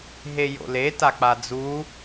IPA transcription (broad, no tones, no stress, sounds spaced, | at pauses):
ɦ e j o̰ l e t a k͡p a d͡z u